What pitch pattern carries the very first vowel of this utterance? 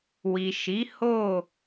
low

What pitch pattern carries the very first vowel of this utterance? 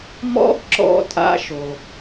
high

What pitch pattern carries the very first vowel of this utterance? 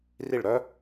falling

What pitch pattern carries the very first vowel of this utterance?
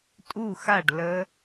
falling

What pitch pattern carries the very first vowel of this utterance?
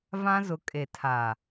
high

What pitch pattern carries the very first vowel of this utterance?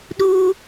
high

